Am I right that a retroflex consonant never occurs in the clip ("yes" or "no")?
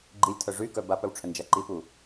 no